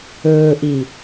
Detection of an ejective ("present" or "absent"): absent